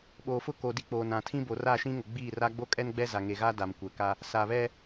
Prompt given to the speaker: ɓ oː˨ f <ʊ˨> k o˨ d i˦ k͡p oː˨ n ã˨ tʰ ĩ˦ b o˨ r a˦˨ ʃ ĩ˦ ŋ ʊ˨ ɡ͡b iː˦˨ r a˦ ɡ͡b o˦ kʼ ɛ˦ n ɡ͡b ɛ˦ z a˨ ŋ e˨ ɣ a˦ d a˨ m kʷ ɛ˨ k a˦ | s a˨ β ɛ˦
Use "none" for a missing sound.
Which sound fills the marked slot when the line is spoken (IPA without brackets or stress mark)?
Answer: ʊ˦